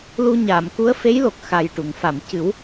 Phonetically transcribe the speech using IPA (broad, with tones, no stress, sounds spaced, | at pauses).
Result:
l u˧ ɲ aː˨˩˨ m k u˧˥ ə̯ f e˧˥ j l o˨˩ k̚ x a˨˩ j ʈ u˨˩˨ ŋ f a˨˩˨ m c ɨ˨˩˦ w